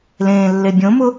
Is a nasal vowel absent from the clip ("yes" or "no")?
no